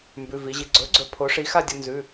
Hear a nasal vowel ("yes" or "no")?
no